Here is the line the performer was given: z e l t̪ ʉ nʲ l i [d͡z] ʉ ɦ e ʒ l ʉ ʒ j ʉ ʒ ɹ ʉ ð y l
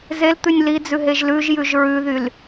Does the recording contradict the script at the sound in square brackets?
no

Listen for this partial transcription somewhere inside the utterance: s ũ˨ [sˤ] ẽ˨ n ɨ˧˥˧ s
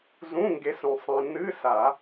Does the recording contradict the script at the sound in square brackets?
no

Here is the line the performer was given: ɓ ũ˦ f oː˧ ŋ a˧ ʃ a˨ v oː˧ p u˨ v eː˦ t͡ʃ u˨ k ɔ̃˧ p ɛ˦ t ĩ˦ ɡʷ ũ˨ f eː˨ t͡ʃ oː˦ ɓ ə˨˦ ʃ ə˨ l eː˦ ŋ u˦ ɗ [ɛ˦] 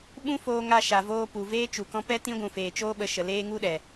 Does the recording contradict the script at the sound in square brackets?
yes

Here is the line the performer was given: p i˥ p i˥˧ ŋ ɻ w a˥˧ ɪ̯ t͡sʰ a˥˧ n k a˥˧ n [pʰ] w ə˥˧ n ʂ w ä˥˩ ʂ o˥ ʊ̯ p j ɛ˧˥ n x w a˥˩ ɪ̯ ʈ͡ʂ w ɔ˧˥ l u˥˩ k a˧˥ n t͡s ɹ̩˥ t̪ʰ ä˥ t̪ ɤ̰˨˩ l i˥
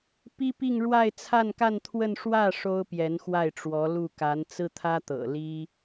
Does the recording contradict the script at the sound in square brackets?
yes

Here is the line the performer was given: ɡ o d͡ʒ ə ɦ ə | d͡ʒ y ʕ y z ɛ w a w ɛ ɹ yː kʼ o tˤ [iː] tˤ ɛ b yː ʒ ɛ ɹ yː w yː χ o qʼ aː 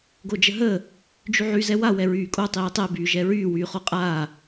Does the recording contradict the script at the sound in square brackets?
no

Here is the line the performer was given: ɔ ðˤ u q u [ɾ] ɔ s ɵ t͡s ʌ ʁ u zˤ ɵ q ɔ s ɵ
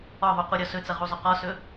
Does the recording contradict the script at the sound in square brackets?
yes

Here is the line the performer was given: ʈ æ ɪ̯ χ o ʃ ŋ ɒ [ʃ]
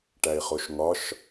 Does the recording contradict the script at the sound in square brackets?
no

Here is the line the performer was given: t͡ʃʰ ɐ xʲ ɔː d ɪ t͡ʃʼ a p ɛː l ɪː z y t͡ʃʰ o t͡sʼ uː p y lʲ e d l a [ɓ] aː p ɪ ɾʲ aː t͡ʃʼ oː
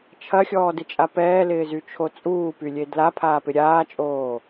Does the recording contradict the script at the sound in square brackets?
yes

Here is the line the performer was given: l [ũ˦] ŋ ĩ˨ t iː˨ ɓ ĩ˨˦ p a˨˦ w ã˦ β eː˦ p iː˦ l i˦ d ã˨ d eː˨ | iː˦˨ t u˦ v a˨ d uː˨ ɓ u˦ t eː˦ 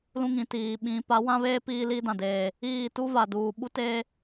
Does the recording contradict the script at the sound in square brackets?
no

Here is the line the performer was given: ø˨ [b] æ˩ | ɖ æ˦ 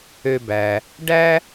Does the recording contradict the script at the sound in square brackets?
no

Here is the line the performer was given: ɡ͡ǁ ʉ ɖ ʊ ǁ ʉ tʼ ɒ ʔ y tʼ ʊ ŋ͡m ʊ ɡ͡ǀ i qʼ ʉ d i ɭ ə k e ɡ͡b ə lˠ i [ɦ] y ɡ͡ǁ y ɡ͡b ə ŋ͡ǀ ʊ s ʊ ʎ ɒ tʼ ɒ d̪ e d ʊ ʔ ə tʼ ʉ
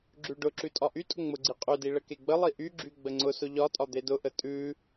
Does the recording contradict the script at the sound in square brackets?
yes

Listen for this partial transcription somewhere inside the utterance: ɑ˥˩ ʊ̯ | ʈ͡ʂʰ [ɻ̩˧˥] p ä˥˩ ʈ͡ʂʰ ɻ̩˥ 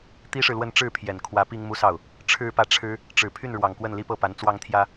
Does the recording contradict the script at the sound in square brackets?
yes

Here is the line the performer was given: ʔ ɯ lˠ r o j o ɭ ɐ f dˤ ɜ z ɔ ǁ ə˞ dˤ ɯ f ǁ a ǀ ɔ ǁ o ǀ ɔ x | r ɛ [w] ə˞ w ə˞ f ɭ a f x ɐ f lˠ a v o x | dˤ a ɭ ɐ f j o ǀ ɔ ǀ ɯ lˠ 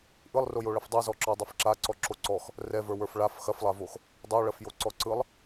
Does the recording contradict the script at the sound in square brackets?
yes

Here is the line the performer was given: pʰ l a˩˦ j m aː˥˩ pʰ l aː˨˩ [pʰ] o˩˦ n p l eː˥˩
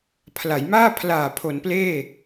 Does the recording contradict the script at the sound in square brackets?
no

